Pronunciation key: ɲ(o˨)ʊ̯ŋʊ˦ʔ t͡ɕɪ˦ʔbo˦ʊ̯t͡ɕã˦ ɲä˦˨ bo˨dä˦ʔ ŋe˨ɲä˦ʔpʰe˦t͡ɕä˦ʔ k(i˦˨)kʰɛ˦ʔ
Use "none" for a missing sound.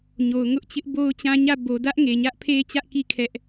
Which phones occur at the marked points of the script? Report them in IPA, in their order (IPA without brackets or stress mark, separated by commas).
o˨, i˦˨